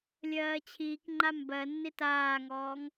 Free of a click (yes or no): no